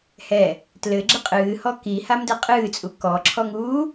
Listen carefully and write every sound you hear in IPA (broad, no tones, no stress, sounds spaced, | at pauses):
h ɛ | t l ɘ ɡ͡ǁ ɘ qʼ ɨː h ɔ k i h a m d ɛ qʼ ɨː t͡sʼ u k ɔ ǁʰ ɔ ŋ uː